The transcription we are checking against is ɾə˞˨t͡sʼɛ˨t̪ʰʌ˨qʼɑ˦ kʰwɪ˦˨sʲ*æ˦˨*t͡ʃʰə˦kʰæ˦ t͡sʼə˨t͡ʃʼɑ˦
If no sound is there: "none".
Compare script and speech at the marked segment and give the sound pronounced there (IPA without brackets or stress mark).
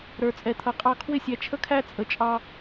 æ˨